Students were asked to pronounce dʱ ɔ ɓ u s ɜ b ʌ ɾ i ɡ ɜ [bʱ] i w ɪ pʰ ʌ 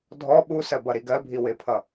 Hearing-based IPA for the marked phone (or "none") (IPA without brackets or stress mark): bʱ